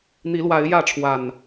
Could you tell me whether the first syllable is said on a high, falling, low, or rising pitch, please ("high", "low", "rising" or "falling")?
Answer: rising